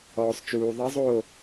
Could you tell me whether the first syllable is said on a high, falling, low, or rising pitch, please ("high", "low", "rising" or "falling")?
low